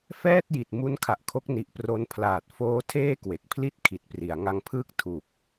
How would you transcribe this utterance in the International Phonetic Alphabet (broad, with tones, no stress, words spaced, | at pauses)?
fɛː˥˩t̚ji˨˩t̚ mu˦˥nkʰa˨˩ʔkʰo˦˥k̚ ni˨˩ʔpro˧npʰlaː˨˩t̚foː˦˥ tʰeː˥˩kwe˨˩k̚pʰli˥˩t̚ kʰi˨˩t̚pri˩˦a̯ ŋa˧ŋpʰɯː˥˩k̚ tʰu˨˩k̚